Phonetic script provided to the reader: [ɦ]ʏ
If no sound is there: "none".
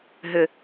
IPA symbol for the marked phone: ɦ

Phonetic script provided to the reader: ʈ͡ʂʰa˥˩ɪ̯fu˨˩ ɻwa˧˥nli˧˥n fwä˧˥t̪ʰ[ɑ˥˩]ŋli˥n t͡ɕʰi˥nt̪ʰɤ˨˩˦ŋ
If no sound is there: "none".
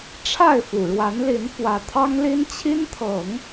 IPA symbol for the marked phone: ɑ˥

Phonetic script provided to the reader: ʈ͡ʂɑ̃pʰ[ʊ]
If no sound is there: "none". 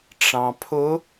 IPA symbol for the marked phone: ʊ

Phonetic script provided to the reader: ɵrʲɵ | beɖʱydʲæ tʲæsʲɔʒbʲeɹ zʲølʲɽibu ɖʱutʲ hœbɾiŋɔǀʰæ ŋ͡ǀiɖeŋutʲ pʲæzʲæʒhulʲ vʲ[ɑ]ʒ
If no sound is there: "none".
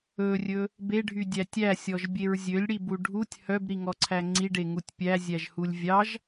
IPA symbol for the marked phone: ɑ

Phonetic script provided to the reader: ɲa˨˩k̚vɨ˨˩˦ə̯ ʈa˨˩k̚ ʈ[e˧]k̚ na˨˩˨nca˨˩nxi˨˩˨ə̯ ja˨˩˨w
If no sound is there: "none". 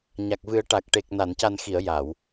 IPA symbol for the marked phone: e˨˩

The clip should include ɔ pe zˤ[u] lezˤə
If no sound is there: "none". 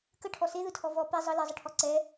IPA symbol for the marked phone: ɯ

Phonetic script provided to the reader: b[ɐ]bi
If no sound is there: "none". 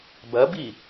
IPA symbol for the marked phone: ɐ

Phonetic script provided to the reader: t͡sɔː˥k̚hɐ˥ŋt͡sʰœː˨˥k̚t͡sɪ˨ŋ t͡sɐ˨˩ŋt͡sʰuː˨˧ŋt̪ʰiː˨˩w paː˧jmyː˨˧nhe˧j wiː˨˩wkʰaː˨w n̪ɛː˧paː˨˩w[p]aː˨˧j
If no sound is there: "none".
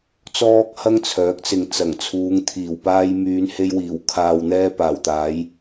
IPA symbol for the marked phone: t̪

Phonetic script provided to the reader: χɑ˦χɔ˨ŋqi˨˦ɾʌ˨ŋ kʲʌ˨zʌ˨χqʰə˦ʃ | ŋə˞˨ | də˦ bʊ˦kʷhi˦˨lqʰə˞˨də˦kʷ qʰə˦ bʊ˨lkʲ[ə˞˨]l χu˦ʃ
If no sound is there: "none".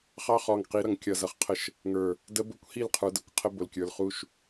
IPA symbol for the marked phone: ə˞˨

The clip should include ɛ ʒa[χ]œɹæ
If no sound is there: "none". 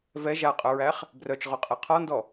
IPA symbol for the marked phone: qʼ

